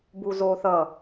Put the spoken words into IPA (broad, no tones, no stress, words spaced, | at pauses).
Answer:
buzoːθʌ